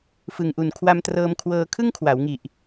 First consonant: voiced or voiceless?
voiceless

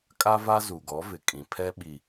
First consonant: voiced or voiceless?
voiceless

